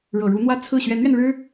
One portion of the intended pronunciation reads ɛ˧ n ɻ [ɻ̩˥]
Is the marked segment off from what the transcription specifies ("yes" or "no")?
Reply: no